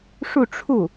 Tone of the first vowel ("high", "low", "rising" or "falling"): falling